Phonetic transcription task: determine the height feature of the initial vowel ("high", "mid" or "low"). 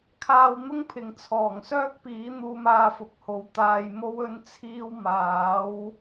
low